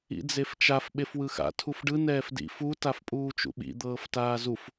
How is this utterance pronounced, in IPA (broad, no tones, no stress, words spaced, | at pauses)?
ḭd͡zeft͡ʃaf ɓefwɯxa̰ tʰufɖɯ nɛːfdḭ fu tafpʼuːt͡ʃṵɓḭ d̪ɤːftaːzuf